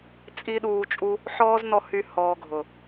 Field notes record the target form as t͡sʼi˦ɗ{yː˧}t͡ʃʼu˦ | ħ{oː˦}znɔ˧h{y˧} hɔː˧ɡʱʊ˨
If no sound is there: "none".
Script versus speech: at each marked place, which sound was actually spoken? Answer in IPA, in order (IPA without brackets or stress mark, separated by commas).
uː˧, ɔː˦, y˧